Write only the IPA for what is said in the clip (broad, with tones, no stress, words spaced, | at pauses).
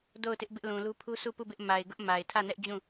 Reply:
do˦˨ʊ̯tɪ˦ʔ bɪ˦ʔlũ˨lu˦ pʰu˦su˦˨pu˦˨bɪ˦ʔ ma˨ɪ̯ɡʊ˦ʔ ma˨ɪ̯tʰä˦˨nɛ˦ʔd͡ʑũ˦˨